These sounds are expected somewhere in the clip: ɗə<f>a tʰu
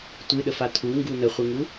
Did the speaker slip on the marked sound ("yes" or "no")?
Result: no